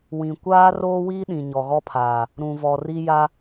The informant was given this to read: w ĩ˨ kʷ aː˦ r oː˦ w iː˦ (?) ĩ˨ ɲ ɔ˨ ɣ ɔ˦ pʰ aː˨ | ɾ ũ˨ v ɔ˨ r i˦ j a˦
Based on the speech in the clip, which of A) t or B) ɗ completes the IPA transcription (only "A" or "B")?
B